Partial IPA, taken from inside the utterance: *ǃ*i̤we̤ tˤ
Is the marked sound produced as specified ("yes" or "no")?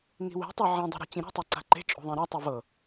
no